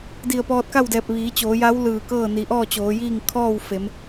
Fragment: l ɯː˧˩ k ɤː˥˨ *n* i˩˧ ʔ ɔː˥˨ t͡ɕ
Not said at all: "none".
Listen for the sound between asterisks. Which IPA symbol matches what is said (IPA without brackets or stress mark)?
n